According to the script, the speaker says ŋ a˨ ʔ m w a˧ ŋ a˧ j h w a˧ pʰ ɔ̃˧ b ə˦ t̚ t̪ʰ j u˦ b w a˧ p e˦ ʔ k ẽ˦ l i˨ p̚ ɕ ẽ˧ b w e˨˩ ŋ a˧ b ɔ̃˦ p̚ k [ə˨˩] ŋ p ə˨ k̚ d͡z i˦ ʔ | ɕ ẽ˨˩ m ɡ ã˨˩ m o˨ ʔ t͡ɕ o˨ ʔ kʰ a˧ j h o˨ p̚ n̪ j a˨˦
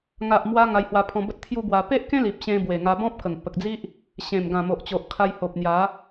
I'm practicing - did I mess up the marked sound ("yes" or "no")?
no